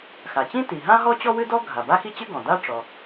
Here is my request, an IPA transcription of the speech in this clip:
xa˩t͡ɕĩ˥ ti˩ɦã˥ ɦɔ˥t͡ɕɔ˥wɨ˥dɔ˥ ɡʱa˩ba˥xi˥t͡ɕɨ˥ ɡɔ̃˩d̪a˥ ʈ͡ʂɔ˩

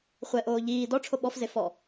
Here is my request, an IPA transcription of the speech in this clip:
χʷɛʔoː ʎiː dɔ ʈ͡ʂʰoɓɔfze fɔ

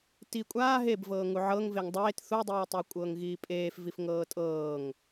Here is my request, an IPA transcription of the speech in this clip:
ti kʷʼaː ɦebvɤːŋu ʕɤŋ veŋdˤeːt θudˤiːtˤu kʷʼɤːŋɣiːpʼeːf vifŋɤːtʼɤːŋ

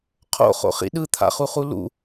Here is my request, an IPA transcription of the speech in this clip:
qʰo̰χo̰χḭ ɗɯt̪ʰa̰χuχu lṵ

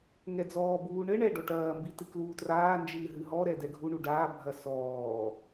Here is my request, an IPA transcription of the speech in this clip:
ŋɛd͡zɔːbuː ɳɘ ɳɛ ɖɔʈɐːmbi tɨkluːtraːnd͡ʒɨː ɦɨɦɔɾɛ dɛɡʱuɳu ɖaːbʱɐ sɔː

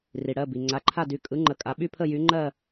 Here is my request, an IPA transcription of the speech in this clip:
ri˩ɽɜ˩˧˩ bi˩ ŋ͡ǀa˩˧˩ǃʰa˥˨dy˩˧˩kʼɯ˨˥ ŋ͡ǃə˩˧ kʼa˩˧ɓy˥˨pʰə˥˨ jy˨˥ŋ͡ǃɜ˥˨

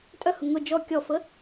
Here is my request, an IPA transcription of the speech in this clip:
tʼœhʊ ŋʊ d͡ʒɔ kʲɔfə

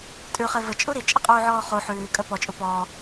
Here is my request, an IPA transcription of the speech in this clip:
tʼʉχe vət͡ʃʼu ɾit͡ʃʼɘqʼuːʕɔː χu ħʉːkʼə pɔt͡ʃʼu pɔː

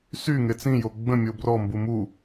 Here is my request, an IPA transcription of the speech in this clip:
sy ŋet͡sĩjo ɡ͡bə̃ mʲobrɔmbu mu

